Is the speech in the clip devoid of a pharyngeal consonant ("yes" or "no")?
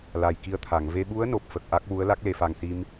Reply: yes